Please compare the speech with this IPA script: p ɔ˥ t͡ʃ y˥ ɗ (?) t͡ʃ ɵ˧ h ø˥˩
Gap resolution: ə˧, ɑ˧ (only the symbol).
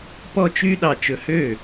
ɑ˧